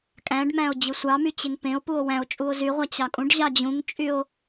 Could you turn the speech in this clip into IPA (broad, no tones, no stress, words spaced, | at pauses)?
kʼæ̃ɖmæ̃o̯ d͡ʑɯsʷɑmy t͡ɕeŋpẽo̯puo̯ wæ̃o̯t͡ʃʼuo̯ zyʁʷæ t͡ɕɑkʼũɖʑɑ d͡ʑũŋt͡ʃʼyo̯